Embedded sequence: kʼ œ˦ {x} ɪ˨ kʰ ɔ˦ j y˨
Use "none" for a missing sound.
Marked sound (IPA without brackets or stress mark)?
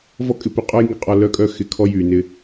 x